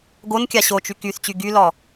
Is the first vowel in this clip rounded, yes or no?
yes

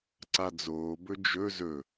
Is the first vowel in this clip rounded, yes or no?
no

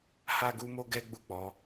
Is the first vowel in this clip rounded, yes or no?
no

